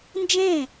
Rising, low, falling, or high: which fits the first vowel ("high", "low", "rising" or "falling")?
falling